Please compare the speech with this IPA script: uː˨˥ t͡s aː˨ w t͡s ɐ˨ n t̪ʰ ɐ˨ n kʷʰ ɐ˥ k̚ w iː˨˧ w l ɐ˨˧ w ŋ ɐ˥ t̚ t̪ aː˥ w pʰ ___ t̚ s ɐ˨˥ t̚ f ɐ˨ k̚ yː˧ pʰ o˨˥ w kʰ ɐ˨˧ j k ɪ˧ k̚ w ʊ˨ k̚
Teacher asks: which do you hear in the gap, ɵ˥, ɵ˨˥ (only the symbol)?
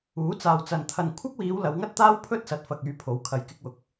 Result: ɵ˥